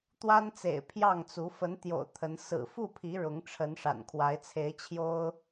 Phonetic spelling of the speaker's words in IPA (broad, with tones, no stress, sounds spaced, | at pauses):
t̪ w a˦ n t͡s ḛ˨˩ ɪ̯ pʰ j ɑ˥˨ ŋ t͡s u˨˦ f ə˨˦ n t̪ j o̰˨˩ ʊ̯ t̪ʰ ə˨˦ n s ɹ̩˨˩ f u˥˨ pʰ i˨˦ ɻ ʊ˨˦ ŋ ʈ͡ʂʰ ə˨˦ n ʂ a̰˨˩ n kʰ w a˨˦ ɪ̯ t͡sʰ e˨˦ ɪ̯ t͡ɕʰ j o˦ ʊ̯